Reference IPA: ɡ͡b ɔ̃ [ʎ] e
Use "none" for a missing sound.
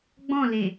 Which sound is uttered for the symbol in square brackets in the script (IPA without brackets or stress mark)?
l